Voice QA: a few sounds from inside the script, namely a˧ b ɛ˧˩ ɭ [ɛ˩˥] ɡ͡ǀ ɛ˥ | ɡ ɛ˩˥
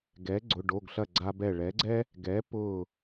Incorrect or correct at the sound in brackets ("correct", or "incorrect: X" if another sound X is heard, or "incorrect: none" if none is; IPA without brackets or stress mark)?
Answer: correct